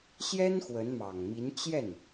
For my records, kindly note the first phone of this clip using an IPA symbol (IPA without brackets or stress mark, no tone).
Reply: ɕ